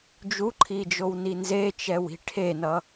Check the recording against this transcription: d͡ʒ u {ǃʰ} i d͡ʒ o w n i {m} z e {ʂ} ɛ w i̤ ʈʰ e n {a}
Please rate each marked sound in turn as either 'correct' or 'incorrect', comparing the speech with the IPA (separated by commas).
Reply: correct, incorrect, incorrect, incorrect